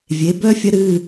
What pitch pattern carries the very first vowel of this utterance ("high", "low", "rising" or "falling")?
rising